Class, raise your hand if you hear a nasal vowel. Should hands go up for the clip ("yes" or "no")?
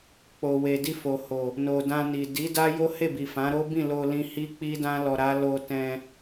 yes